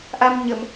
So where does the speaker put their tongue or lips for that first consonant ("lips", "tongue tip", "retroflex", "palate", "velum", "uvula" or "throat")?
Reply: throat